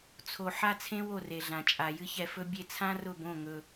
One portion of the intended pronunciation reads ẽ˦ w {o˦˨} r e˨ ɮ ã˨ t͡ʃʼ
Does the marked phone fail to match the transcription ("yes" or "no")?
no